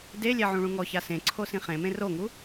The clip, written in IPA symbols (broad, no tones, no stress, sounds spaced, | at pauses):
d e lʲ ɛ ʕ ũ ɭ ũ ŋ ɔ ç a s ẽ ǀʰ o s ĩ χ ẽ m ẽ r o ŋ u